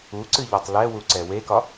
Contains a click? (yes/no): yes